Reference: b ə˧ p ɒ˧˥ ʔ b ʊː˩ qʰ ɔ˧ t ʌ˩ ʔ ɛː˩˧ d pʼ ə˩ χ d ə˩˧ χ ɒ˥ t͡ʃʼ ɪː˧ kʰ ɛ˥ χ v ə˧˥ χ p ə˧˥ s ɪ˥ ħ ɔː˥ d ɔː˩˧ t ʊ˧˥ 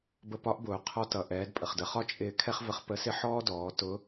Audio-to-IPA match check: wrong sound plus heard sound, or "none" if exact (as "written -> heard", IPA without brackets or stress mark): none